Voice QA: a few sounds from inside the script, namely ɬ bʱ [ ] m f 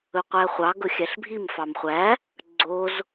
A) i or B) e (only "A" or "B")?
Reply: A